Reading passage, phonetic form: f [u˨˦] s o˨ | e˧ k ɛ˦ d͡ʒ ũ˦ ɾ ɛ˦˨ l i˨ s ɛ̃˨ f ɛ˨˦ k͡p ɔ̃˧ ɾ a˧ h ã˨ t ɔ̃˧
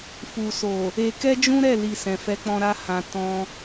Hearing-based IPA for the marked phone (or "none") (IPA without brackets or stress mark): u˨